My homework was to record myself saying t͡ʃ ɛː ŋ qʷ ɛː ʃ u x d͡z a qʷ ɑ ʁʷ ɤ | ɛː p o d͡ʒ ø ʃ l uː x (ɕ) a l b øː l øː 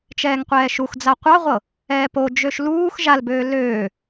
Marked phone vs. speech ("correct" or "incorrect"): incorrect